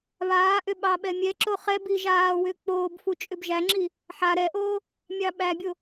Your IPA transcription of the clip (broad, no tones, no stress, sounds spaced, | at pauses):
β aː ʔ ʏ ɓ ɑ ɓ ɛ mʲ ɛ ǁ o χ ɛ b i ʒ aː w ʏː k͡p oː b f u t͡ʃʼ ʏ b ʒ æ ŋ͡ǁ i | ħ a ɾ ɛ ʔ oː | mʲ ɑ ɓ æ bʲ o